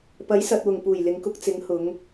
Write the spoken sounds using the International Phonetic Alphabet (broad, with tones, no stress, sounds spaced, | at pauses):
p ɐ˨˥ j s ɐ˨ t̚ w ʊ˨˩ ŋ p uː˨˩ j l ɪ˨ ŋ k ʊ˧ k̚ t͡s ɪ˨˥ ŋ h ʊ˨˧ ŋ